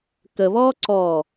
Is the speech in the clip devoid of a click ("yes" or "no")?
no